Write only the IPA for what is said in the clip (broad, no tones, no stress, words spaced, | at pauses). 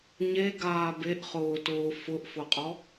ɲeɡaː beʔχʊːtʊː fʊʔfʊqʼɔ